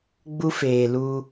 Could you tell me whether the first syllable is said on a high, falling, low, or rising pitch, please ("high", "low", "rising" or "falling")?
high